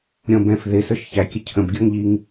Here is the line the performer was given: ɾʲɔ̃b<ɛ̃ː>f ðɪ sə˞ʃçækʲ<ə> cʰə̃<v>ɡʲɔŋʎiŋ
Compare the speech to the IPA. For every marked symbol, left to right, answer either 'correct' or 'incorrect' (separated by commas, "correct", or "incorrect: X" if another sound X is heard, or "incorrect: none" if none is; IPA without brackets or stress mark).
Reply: incorrect: ɛ̃, correct, incorrect: b